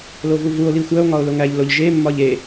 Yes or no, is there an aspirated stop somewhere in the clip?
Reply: no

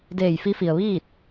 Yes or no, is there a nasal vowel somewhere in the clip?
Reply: no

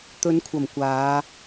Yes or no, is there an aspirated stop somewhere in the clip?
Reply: yes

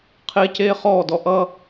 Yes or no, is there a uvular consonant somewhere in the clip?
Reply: yes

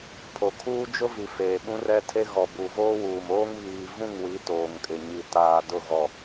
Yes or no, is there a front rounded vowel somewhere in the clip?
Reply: no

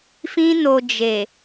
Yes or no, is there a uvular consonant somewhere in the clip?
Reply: no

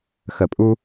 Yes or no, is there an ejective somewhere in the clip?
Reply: yes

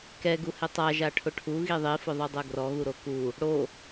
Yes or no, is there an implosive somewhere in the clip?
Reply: no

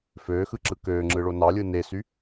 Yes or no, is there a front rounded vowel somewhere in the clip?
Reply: yes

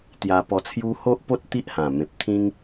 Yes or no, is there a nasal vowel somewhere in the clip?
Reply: yes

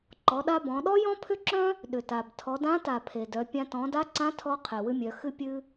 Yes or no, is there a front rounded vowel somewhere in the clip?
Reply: yes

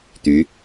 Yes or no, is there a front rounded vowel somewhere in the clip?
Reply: yes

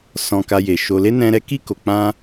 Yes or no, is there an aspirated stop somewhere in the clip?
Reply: no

